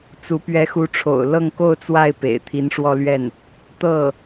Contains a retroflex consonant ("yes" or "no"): yes